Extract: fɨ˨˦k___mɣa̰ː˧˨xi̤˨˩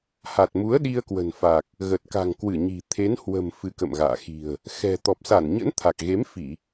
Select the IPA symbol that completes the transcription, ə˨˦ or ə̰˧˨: ə̰˧˨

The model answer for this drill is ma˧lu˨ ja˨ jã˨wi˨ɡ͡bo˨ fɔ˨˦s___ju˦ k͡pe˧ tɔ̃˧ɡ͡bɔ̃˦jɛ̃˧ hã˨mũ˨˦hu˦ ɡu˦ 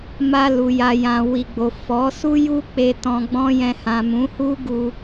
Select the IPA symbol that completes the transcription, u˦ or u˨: u˦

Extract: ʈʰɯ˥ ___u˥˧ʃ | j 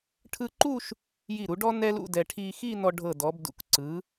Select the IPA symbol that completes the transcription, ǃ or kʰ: ǃ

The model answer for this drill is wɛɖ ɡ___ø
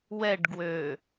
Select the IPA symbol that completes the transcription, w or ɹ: w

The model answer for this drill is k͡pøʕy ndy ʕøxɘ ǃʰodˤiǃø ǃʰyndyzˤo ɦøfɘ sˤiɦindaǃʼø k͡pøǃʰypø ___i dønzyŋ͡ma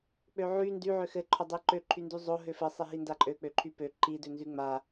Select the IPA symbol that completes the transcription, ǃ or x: ǃ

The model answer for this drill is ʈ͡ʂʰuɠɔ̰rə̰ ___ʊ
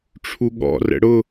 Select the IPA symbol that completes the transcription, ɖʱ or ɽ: ɽ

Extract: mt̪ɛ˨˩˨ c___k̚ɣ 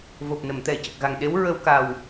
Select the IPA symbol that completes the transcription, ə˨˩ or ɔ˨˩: ə˨˩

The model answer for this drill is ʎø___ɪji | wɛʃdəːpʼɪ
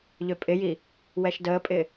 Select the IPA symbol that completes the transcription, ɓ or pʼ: pʼ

